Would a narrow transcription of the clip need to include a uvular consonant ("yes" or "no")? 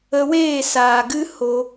no